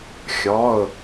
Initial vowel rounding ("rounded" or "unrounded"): rounded